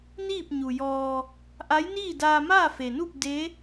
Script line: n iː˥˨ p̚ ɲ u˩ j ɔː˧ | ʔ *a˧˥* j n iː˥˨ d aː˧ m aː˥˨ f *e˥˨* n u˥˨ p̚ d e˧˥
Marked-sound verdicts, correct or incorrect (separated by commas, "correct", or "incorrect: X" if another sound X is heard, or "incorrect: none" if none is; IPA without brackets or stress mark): correct, incorrect: e˩